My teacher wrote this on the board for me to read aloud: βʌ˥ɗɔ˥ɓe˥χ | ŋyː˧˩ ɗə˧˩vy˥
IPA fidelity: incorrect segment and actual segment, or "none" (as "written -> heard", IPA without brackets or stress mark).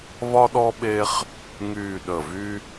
ʌ˥ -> ɒ˥